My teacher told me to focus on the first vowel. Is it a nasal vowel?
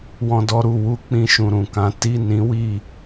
yes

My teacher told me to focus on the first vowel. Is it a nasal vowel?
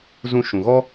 yes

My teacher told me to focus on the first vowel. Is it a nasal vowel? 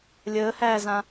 no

